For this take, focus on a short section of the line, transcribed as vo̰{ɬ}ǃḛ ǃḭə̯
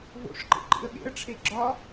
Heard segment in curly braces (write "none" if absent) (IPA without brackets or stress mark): ʂ